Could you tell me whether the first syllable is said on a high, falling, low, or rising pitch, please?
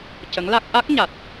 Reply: rising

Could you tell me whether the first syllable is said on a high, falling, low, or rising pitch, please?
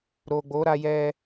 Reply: low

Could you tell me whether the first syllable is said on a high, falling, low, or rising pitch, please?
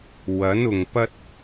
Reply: rising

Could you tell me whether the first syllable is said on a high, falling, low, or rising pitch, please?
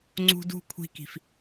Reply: high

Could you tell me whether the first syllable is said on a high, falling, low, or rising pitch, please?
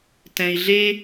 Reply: low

